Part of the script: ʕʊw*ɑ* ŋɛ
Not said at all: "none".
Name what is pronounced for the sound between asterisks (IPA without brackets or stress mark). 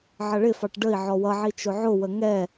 ə